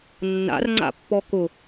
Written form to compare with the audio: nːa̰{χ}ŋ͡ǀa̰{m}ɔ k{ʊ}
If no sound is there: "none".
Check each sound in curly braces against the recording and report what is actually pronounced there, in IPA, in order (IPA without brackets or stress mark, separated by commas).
r, pː, ʊ